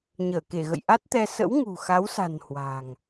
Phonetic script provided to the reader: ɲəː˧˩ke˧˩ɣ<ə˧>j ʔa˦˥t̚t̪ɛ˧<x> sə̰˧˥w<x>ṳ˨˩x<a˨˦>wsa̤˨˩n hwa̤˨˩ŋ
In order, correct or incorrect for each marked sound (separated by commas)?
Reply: incorrect, incorrect, incorrect, correct